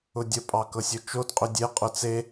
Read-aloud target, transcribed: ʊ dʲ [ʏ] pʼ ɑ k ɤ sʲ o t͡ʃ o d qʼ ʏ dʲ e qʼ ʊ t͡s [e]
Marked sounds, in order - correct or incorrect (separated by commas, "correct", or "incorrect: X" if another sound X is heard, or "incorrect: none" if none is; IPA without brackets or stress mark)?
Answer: incorrect: ə, correct